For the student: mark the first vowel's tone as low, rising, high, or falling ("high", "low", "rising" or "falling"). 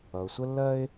low